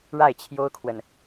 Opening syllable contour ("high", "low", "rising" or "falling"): falling